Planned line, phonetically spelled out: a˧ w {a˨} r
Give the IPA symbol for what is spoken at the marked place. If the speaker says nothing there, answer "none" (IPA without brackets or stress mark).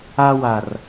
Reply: a˨